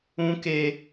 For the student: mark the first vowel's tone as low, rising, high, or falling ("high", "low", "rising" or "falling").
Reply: high